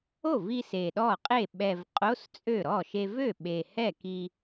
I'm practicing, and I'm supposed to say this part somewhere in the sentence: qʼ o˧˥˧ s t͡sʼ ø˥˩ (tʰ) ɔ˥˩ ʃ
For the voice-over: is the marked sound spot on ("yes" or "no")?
no